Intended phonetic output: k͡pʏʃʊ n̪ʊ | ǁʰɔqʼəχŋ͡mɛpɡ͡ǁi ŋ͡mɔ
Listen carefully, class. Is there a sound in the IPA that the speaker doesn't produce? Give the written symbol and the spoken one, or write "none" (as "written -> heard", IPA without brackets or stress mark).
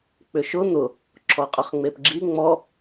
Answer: ɛ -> e